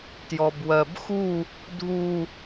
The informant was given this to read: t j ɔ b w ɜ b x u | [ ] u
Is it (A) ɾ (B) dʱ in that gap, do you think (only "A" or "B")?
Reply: B